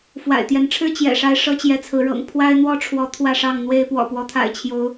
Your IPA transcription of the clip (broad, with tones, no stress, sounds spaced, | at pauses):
f w a̰˨˩ ɪ̯ t̪ j ɛ˨˦ n ʈ͡ʂʰ ɻ̩˦ t͡ɕ j ɛ̰˨˩ ʂ a˦ ɪ̯ ʂ ɤ˦ t͡ɕ j ɛ˨˦ t͡sʰ ɹ̩˨˦ ɻ ɤ̰˨˩ ŋ pʰ w a˦ ɪ̯ n̪ w ɔ˦ ʈ͡ʂʰ w ɔ˨˦ t̪ʰ w ä˥˨ ʂ ɑ˥˨ ŋ n̪ w e˦ ɪ̯ p w ɔ̰˨˩ p w ɔ˦ t̪ʰ a̰˨˩ ɪ̯ t͡ɕʰ j o˨˦ ʊ̯